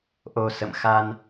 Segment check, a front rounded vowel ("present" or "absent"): absent